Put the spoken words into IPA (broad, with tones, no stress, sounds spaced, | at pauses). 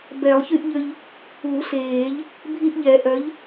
b ɛ˨˩˦ lˠ ç y˦ ʔ ʎ ø˦ ʎ | u˨˩˦ ɬ eː˨˩˦ ʎ | bʱ i˦ ʔ ʎ ɛ˨˩˦ ʔ œ˨˥ ʎ